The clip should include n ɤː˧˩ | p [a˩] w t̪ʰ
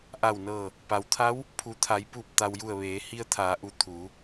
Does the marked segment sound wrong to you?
no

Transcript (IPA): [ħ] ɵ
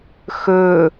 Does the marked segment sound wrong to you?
yes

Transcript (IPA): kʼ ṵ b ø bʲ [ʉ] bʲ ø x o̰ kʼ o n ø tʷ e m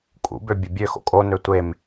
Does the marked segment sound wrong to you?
yes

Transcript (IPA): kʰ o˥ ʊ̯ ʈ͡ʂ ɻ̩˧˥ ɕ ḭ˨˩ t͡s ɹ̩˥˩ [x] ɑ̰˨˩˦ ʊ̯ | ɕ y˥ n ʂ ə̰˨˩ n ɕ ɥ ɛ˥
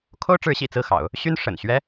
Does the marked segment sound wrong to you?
no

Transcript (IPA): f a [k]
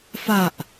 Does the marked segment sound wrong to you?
yes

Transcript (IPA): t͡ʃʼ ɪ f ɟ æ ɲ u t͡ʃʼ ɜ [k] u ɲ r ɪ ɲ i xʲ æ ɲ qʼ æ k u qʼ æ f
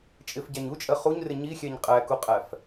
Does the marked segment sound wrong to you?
yes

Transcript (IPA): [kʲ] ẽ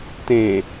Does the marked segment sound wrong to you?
yes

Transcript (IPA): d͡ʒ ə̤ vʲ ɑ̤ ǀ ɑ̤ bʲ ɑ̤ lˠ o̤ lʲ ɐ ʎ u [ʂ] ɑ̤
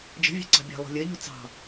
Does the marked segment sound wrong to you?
yes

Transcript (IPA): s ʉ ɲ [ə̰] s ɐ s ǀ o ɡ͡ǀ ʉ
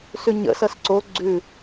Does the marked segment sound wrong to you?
no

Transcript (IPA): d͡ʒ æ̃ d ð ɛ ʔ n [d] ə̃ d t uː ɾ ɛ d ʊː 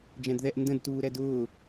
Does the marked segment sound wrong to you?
no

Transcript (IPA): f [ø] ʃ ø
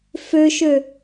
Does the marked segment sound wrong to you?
no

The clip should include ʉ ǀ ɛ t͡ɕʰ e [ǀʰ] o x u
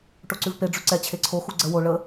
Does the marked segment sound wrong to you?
no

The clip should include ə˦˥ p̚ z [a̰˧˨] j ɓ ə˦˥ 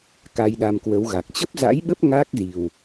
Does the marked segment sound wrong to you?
yes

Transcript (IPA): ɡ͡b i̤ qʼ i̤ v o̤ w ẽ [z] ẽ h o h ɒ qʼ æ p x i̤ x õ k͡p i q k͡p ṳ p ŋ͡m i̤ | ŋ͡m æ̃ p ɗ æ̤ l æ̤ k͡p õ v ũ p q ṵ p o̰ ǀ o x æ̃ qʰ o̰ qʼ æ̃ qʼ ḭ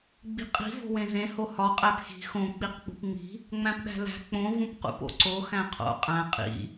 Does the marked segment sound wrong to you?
no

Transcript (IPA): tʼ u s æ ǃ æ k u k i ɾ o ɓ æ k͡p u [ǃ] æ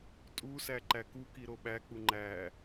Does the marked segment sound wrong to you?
yes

